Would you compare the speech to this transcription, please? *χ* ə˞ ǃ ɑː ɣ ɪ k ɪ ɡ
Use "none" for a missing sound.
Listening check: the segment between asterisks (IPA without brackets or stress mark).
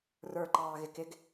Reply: r